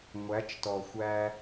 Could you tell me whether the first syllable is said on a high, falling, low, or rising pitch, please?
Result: rising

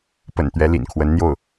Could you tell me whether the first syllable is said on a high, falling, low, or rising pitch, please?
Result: low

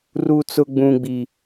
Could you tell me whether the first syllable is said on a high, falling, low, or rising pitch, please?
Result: low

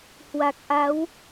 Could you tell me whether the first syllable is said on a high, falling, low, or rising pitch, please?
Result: low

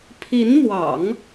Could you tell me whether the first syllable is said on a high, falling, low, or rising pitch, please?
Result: rising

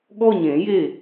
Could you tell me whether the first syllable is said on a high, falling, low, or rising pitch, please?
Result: falling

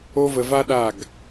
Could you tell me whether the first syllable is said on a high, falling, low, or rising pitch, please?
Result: high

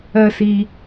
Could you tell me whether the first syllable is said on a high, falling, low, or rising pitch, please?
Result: high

